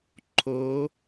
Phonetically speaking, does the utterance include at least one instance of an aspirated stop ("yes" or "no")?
yes